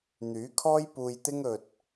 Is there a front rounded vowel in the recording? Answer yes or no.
yes